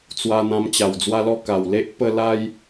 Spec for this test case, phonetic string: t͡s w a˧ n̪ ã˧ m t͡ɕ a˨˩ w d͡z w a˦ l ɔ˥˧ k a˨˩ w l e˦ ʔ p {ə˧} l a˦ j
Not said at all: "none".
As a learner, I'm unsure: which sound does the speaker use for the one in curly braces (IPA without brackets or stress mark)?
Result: ə˥˧